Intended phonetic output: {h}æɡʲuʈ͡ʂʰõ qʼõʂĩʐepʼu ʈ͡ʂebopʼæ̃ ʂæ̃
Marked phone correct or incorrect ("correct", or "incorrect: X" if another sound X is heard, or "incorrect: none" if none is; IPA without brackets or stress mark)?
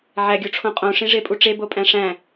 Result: incorrect: ʕ